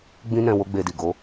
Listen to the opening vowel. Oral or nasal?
nasal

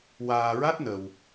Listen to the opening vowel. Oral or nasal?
oral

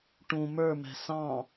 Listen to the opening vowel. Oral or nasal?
nasal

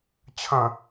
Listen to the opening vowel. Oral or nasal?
nasal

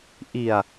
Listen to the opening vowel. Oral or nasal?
oral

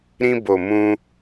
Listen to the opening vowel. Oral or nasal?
nasal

